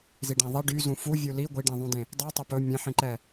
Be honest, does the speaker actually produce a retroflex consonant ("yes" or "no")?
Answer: yes